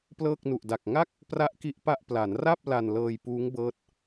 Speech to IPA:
p l ɤː˥˩ k̚ n u˨˩ ʔ d a˨˩ k̚ ŋ a˥˩ k̚ | p r a˥˩ ʔ k i˥˩ ʔ p a˥˩ ʔ p l a˩˦ n r a˥˩ p̚ l a˧ n l ɤː˧ j p uː˦˥ ŋ b ɤː˦˥ t̚

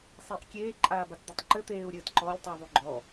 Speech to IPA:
sˤ e ʔ kʲ eː ǃʼ aː b a t d̪ ɘ tˤ ǃ ɘ t̪ eː u̯ ɾʲ ɘː t ǃ ɔ lʲ tˤ u ðˤ u ɡ͡ǃ ɔ

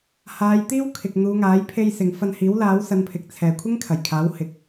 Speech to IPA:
h aː˨˧ j t̪ iː˥ w kʰ ɪ˨ k̚ n̪ uː˨˧ ŋ aː˨˥ j pʰ e˧ j s ɪ˨ ŋ f ɐ˧ n h iː˨˥ w l aː˨˥ w s ɐ˨˧ n pʰ ɪ˨ k̚ t͡sʰ ɛː˨ kʷʰ ɪ˥ ŋ kʰ ɐ˨˩ j kʰ aː˨˥ w h ɪ˨ k̚

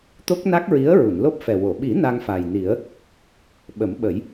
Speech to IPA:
t̪ o˦˥ k̚ n a˦˥ k̚ ɹ i˧˥ ə̯ ɹ u˨˩˨ n l o˦˥ p̚ f ɛ˨˩ w o˨˩˨ ɓ i˨˩˦ n a˧ ŋ f a˨˩ j n i˨˩˦ ə̯ | ɓ ə˨˩˦ m ɓ ə˨˩˦ j

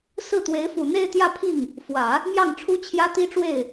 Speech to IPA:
s ɹ̩˥˩ t̪ w e˧˥ ɪ̯ f u˨˩ n̪ e˥˧ ɪ̯ t̪ j ä˥˧ pʰ i˥˩ ŋ | f w ä˨˩˦ | m j ɑ˥˩ ŋ ʈ͡ʂʰ u˥ t͡ɕʰ j ä˥ t̪ i˥ ʈ͡ʂ w e˥˩ ɪ̯

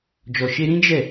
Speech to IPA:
d͡ʒ ɔ˨ ʃ e˧ ɾ ĩ˦ d͡ʒ ɛ˦˨

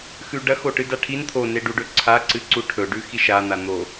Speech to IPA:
x ʉ ɖ ɐ x o ʈ ɨ d a ʈʰ i n t̪ʰ o n e ɖ u ɖ ɵ ǀʰ a ǀ ɨ ǀ u ʈʰ ɵ ɖ ʉ x i ʃ a n̪ a n̪ o

